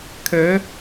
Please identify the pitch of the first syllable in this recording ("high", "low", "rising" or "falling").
rising